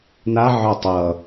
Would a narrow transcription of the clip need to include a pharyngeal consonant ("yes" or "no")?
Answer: yes